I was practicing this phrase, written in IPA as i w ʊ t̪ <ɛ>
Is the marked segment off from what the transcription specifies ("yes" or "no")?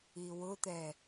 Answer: no